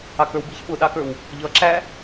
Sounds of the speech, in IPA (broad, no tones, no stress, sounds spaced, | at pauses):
ɑ k ə˞ w b i ç ɓ ʊ ɗ ɑ k ə˞ w | ʎ ʌ ǁ æ